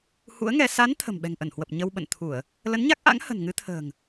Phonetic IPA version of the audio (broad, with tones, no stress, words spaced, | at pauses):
hṵ˧˥ə̯ŋɛ˧ sa˨˦n t̪ʰə̤˨˩mɓɛ̤˨˩ŋʔə˧˩nhwə˨˩p̚ ɲə˧wɓə̰˧˨nt̪ʰu˧˩˨ə̯ | lə˨˦nɲa˦˥k̚ʔa̰˧˥ŋ hə̤˨˩nŋɨ˨˦t̪ʰə̤ː˨˩ŋ